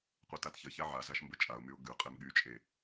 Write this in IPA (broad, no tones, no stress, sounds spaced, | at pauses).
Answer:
qʷ e t a t ç ə ç a ʕ a z a ʃ m b ə t͡ʃʼ a ʊ̯ m y ʊ̯ ɡ ʉ qʼ e m ɠ y t͡ʃʼ e